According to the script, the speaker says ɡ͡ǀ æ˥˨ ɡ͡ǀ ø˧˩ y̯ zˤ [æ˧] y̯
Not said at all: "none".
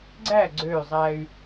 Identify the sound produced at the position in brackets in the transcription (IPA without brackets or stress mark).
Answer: æ˧